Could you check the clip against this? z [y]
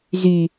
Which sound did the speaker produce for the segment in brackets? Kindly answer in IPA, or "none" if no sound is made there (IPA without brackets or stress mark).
y